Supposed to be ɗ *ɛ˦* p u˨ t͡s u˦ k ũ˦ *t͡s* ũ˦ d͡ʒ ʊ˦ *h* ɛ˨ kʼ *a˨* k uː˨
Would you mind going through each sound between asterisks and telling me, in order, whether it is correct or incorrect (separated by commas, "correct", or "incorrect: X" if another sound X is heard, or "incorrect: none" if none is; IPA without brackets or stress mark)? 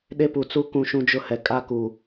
incorrect: e˦, incorrect: ʃ, correct, incorrect: a˦